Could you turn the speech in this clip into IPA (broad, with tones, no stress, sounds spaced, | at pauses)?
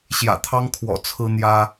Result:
ɕ j ä̰˨˩ t̪ʰ ɑ˦ ŋ kʰ w ɔ̰˨˩ t͡sʰ ɹ̩˦ n̪ j ä˦